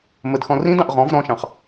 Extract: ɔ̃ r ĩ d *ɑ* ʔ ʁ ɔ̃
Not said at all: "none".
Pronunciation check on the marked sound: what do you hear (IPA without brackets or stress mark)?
ɑ̃